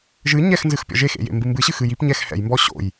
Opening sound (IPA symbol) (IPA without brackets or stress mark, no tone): ʒ